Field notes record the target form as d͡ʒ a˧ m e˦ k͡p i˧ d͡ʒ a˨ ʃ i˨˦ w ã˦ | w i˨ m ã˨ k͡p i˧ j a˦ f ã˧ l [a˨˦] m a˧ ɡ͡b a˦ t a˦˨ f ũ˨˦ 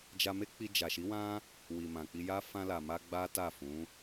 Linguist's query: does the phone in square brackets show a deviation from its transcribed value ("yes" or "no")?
yes